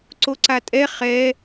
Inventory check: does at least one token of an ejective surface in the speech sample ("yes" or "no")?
yes